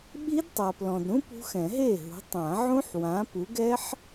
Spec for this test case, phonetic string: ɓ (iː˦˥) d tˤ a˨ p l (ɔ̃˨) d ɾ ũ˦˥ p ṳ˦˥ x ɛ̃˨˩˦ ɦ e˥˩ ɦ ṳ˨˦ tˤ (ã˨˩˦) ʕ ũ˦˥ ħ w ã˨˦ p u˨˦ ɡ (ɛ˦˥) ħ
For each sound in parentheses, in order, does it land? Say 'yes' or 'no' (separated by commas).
no, yes, yes, yes